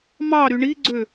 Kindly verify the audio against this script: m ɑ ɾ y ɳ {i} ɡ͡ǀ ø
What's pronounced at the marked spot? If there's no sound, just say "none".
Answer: i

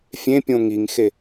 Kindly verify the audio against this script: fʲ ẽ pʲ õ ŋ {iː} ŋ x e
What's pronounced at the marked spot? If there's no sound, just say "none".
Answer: i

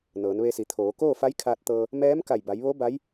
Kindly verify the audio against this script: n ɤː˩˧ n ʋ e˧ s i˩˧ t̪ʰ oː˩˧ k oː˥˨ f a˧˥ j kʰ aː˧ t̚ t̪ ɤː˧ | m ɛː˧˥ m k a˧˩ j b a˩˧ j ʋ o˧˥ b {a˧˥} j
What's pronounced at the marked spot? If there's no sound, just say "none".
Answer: a˧˥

